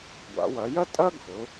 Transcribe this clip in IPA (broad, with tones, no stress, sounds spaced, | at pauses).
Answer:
ɡʷ a̰˩˧ w ɐ˩˧ j ɐ˥ tʼ ɐ˥ ɡʱ ʊ˩˧